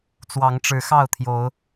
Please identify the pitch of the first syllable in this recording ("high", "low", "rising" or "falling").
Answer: rising